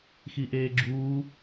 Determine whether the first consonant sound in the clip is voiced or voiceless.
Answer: voiceless